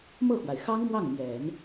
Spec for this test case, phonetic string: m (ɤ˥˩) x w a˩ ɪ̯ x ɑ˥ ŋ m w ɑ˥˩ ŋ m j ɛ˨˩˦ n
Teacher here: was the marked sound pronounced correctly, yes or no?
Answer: yes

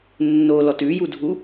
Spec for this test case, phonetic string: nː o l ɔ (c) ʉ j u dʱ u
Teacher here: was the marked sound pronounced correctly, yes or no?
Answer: no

